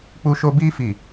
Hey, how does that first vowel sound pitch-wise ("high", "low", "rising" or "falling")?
high